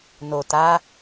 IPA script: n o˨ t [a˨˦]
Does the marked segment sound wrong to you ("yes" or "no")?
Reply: no